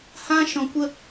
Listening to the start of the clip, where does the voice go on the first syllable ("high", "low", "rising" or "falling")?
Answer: high